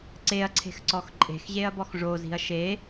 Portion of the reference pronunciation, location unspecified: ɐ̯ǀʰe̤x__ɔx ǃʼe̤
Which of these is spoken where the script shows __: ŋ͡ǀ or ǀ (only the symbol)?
ǀ